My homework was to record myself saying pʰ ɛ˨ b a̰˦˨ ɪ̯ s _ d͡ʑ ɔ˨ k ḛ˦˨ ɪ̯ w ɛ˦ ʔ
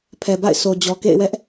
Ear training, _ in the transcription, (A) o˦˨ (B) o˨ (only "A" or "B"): B